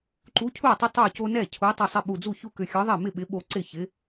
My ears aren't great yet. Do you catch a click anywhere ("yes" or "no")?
yes